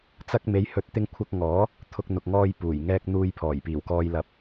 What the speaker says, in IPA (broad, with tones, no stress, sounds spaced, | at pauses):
t͡s ɐ˧ k̚ m e˨˧ j h ɵ˨˥ t̚ t̪ ɪ˧ ŋ kʷʰ ɐ˧ k̚ ŋ ɔː˨˥ | t̪ʰ ʊ˧ k̚ n̪ ʊ˨ k̚ ŋ ɔː˧ j p uː˨˩ j ŋ ɛː˧ k̚ n̪ uː˧ j pʰ ɔː˨˩ j p iː˨˩ w k ɔː˧ j l ɐ˨˥ p̚